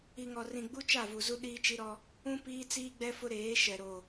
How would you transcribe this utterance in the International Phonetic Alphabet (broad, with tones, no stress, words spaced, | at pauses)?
i˨ŋɔ˨rĩ˨ ɡ͡bu˦t͡ʃa˦˨ vu˨zu˦ ɗiː˦t͡ʃi˦ɾɔ˦ | ũ˦ piː˦t͡siː˦ɡ͡bɛ˦fʊ˦ ɾeː˨˦ ʃɛ˨ɾo˨